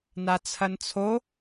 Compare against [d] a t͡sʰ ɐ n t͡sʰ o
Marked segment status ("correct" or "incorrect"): incorrect